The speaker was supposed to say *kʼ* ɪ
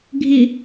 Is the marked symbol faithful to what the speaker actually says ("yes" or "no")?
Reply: no